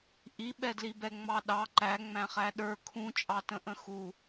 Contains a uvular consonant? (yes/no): yes